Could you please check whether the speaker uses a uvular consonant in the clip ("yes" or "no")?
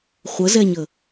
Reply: yes